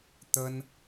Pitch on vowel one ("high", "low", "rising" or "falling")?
high